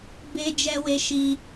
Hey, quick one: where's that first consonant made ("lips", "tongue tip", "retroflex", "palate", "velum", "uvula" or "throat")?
lips